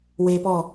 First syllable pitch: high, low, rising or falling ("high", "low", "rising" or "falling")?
high